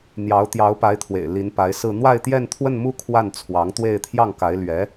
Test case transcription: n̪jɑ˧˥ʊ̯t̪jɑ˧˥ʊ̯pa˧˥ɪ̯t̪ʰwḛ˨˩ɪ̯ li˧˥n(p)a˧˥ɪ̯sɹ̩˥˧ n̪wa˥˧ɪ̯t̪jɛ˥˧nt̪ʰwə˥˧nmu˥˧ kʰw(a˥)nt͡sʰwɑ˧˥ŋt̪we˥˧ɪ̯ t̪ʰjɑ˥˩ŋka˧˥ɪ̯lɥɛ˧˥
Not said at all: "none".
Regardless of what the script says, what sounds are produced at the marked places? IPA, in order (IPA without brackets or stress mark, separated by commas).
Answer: p, a˥˩